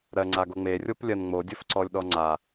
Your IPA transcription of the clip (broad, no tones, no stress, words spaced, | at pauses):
ɾɜŋ͡ǀaɡoŋ͡me rʲoplʲɜnŋ͡mo dʲɘfǀɔlʲɗɔŋ͡ǀa